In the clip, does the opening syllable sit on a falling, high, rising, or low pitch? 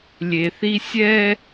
low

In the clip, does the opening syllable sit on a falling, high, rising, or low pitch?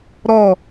falling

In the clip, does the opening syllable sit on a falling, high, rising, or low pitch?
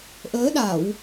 rising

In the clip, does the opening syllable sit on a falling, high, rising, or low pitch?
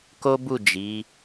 high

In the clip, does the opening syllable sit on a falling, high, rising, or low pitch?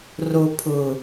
low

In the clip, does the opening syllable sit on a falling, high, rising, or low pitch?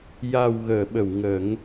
low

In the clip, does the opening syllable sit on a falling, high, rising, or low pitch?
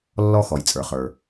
high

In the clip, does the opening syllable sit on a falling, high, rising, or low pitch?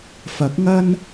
rising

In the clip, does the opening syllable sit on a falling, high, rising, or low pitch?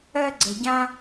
high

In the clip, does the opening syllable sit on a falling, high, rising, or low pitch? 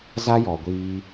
high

